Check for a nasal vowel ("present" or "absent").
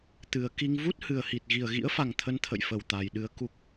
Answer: absent